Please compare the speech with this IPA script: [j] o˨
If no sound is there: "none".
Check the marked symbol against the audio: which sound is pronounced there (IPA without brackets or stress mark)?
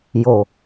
j